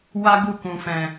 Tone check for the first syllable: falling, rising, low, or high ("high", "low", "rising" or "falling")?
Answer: high